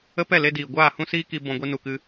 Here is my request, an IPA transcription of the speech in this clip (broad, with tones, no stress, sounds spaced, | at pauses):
ə˦ p ɛ˦˨ l e˧ d iː˨ ɡʷ aː˦˨ h ũ˦ s iː˦ k i˧ b ɔ̃˧ ɡʷ i˧ n u˨ k ɨ˧